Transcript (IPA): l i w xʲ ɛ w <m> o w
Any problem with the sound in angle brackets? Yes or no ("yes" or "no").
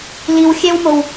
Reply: no